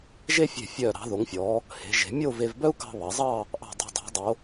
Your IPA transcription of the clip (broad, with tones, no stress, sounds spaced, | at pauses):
ʒ e˥ fʲ e̤˧˩ fʲ œː˧˩ ɾ ɑ̤˩˧ ð o˩˧ ŋ fʲ ɔː˩˧ | h e̤˩˧ ʒ e̤˩˧ mʲ o˥˧ v e˧ v b œ˥ u̯ k ɑ̤˧ β ɑ˩˧ zˤ ɑː˥˧ | ʔ ɑ̤˧˩ dˤ ṳ˧˩ dˤ ɑ̤˩˧ dˤ o˩˧